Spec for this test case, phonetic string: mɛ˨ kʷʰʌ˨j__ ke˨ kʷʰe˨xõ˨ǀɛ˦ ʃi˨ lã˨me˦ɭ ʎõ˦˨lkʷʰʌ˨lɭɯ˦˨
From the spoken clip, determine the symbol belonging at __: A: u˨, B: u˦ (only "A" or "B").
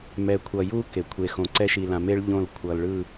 B